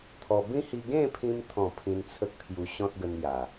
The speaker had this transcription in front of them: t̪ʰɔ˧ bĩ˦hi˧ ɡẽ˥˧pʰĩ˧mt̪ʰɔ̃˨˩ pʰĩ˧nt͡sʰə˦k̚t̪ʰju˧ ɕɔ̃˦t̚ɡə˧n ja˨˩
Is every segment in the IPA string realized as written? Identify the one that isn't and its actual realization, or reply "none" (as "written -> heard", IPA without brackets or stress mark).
none